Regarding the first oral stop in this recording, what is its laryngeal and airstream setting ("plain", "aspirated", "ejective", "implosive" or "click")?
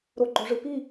click